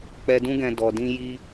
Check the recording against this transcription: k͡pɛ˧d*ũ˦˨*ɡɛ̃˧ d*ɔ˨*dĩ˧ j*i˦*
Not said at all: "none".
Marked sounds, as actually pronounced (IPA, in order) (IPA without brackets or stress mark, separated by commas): ũ˦, ɔ˨, i˦